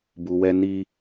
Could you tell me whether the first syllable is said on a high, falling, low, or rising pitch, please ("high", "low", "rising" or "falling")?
low